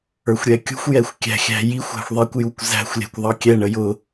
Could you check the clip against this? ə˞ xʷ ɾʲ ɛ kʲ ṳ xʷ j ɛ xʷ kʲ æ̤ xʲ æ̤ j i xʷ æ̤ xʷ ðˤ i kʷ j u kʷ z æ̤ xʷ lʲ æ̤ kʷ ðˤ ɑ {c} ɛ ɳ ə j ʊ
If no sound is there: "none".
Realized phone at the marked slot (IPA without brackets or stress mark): kʲ